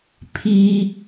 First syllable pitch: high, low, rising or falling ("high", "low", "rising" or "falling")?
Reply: high